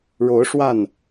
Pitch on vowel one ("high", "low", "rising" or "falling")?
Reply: rising